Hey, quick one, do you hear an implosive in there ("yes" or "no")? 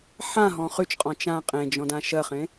no